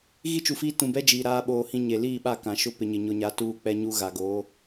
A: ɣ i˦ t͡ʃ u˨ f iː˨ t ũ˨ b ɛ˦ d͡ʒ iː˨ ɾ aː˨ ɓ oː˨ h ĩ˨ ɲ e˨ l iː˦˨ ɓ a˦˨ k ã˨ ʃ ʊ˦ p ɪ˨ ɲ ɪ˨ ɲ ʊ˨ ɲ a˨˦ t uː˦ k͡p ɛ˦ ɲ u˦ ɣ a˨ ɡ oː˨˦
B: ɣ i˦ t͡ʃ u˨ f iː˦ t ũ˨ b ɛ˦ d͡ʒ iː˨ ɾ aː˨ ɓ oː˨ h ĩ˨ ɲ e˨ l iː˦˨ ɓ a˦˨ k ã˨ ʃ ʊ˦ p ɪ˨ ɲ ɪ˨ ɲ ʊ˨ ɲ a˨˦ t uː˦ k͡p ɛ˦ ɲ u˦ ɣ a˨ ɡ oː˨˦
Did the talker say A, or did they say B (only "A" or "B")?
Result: B